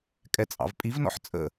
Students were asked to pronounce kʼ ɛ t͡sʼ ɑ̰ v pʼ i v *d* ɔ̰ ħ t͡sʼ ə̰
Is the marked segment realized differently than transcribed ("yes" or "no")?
yes